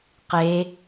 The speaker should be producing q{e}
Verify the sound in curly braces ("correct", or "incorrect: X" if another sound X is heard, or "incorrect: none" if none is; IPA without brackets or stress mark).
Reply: correct